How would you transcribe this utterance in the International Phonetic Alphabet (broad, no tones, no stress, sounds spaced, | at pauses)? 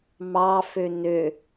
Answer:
m ɑ f ø n ø